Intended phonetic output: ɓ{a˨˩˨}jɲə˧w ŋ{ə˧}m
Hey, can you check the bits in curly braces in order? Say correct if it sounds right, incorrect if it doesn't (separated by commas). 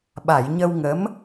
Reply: correct, incorrect